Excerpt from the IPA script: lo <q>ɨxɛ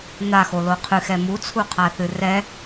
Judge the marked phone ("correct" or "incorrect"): incorrect